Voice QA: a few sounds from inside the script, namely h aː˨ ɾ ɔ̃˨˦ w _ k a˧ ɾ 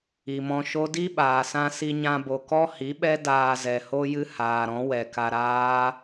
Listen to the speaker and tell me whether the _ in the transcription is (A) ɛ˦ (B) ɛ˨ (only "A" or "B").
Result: B